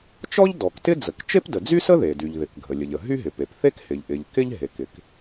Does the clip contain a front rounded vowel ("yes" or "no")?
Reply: yes